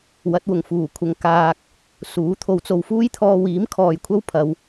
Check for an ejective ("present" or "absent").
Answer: absent